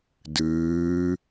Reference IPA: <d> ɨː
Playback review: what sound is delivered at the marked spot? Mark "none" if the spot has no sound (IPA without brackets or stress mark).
d